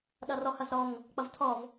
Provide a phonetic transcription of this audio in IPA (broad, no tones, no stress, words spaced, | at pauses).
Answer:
ɗʌrɔhʌzɾɔŋ | k͡pʌvtʰɔv